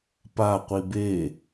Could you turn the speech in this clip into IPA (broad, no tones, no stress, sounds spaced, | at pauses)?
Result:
p a qʷ i b e